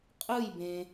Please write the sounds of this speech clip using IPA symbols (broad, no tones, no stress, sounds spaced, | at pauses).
qʼ ɯ j b ẽ